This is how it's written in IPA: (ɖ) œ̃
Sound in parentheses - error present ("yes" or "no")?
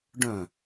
no